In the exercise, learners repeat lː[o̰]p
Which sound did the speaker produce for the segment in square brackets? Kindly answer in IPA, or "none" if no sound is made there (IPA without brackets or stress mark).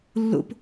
o̰